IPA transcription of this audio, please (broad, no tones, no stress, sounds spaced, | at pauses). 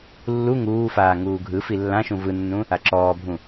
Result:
lː u ŋ uː f aː ŋ uː ɡʱ ɯ f i lː ã ʃ ũ v ɯ nː ũ | a ǁ ɔː bʱ ũ